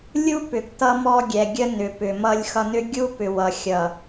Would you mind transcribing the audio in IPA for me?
lʲ u˦ p ʏ˨ ɡ t ʌ˦ m ɔ˦ ɡʲ ɛ˨ ɡʲ ə˦ n ʏ˨ p ʏ˨ m ʌ˦ lʲ x ʌ˦ n ʏ˦ ɡʲ u˦ p ʏ˨ w ʌ˨ xʲ ʌ˨

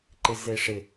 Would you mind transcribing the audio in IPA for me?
ǃ ɪ z e ʂ ɪ

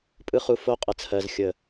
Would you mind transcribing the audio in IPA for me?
pʼ ɯ˦ χ u˧ f o˦ qʼ ə˨ t͡sʰ ɜ˨ z xʲ ə˨

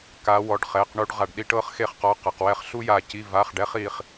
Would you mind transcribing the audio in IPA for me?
k a˧˥ w ɔ˧˥˧ ɖ χ ɛ˧˥˧ q ɳ u˥ ɖ ʁ a˧ ɖ ɗ i˥ ʈ ɤ˥ χ x e˥˧ χ q ɔ˧˥˧ q ɤ˧ q w ɛ˥ χ ɬ u˥ j a˧ c i˧˥˧ v a˧˥˧ χ ɖ ɛ˥ χ i˧ χ

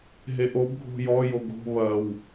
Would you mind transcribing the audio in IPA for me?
ɦ e ʔ o b ɡʱ o̤ j ɔ j o ɡ o̤ β ɐ w

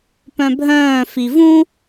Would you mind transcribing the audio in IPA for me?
p œ̃ bʱ œ̃ː f i v ũ

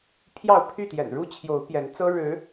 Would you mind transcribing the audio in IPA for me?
pʰ j ɑ˥˨ ʊ̯ pʰ y˥˨ t̪ j ɛ̰˨˩ n ɻ u˦ t͡ɕʰ j o˨˦ ʊ̯ p j ɛ˨˦ n t͡s ɤ˦ ɻ ɻ̩˨˦

